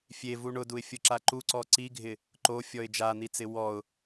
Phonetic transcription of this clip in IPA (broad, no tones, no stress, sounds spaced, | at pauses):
fʲ e v u ɳ ʊ d u ɪ̯ fʲ ʊ ǁ a ǃ u ǀ ɔ ǀ i ɡʱ ɪ | ǃ o fʲ ɔ ɪ̯ d͡ʒ a n̪ i t͡s ɪ w ɔ ʊ̯